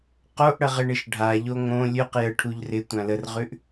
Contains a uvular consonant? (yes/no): yes